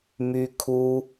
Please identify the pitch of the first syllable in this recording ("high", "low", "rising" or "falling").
high